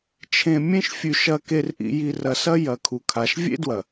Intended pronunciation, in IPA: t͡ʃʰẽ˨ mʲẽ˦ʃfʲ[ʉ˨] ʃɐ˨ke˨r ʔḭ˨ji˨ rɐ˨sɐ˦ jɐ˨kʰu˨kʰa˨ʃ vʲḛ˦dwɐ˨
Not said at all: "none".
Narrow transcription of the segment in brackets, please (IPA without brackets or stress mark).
ʉ˨